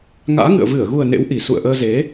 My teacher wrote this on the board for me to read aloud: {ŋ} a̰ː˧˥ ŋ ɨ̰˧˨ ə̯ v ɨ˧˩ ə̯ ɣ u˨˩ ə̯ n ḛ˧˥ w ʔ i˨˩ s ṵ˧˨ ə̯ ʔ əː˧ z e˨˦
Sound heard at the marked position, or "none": ŋ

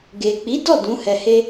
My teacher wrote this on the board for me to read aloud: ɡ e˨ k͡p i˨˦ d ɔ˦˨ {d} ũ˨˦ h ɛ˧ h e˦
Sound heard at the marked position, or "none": d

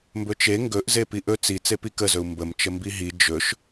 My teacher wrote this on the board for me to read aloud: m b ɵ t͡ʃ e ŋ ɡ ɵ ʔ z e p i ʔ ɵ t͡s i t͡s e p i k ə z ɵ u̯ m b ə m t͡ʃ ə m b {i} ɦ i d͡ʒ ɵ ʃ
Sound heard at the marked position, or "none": i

